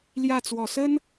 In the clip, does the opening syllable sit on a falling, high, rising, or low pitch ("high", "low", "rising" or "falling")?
falling